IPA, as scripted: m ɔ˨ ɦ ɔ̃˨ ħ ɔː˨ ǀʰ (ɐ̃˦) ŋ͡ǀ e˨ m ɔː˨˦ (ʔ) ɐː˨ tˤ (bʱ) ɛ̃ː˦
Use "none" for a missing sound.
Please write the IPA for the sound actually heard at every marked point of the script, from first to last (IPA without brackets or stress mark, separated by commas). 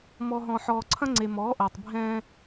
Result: ɐ̃˦, ʔ, bʱ